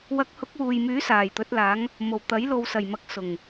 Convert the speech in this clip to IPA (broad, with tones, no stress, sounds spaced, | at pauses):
w ɐ˨˥ k̚ h ʊ˨˥ k̚ w uː˨ j m yː˨˥ s aː˨˩ j t̪ ɵ˨˥ t̚ l aː˨˥ ŋ | m o˨˩ w t̪ ɐ˨˥ j l o˨ w s ɐ˨˩ j m ɐ˨ k̚ s ʊ˨˩ ŋ